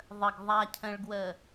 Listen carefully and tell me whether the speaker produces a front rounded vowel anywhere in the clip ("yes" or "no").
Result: no